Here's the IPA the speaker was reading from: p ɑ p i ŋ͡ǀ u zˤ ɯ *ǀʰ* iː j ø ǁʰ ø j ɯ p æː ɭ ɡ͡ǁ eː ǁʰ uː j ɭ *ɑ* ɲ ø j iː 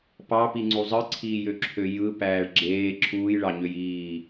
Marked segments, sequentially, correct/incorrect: correct, correct

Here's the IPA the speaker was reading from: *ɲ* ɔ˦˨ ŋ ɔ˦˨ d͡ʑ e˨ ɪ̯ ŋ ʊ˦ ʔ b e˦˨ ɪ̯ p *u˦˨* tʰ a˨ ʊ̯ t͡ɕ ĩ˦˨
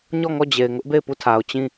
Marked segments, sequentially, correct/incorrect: correct, correct

